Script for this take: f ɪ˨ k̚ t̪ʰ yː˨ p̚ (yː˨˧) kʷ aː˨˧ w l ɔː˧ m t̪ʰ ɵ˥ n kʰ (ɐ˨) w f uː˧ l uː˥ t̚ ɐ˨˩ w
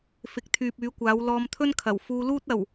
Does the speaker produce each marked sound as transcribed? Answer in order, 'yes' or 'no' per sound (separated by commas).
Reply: yes, no